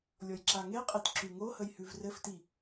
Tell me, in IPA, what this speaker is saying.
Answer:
lʲ ɔ j ǁ a ŋ e qʼ i t ǁ ʉ ŋ o h ə j h ʉ v r ɘ f t i

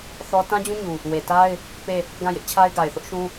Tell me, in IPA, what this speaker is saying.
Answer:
θ ɔ˦ t ã˦ d͡ʑ ũ˦ ɲ u˨ | w e˨ t a˦ ɪ̯ | p e˦˨ | ɡ ã˦˨ j ɪ˦ ʔ t͡ɕʰ a˦ ɪ̯ ɡ a˨ ɪ̯ θ ʊ˦ ʔ ʃ ũ˦

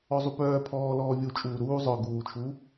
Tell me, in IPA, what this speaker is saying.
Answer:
ɔ zˤ u p œː pʰ ɔː l ɔː vʲ u t͡ʃʼ uː ɾ uː zˤ œ ɡ uː t͡ʃʰ u

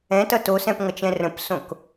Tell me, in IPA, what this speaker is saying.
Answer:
ɛ̃ t ʌ t o s ɛ̃ p ŋ ʌ t͡ʃ ɛ̃ r ə̃ p s õ k

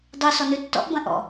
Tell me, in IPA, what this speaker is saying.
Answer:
dˤ u s ɔ n ʉ tː ɔ̰ ʔ b ɐ̃ ʔ ɔ̰

